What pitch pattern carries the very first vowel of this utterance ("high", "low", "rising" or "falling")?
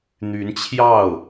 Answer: rising